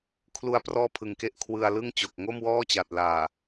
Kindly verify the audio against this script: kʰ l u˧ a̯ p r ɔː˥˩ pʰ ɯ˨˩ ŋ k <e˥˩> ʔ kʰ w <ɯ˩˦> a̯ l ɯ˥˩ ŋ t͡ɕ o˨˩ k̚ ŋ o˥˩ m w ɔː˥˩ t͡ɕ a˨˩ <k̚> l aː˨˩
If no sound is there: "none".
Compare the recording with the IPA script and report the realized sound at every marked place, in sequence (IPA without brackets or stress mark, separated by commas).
e˥˩, ɯ˧, t̚